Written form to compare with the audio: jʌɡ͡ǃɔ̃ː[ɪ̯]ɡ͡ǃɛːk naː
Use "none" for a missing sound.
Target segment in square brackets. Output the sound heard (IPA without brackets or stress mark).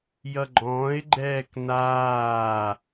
ɪ̯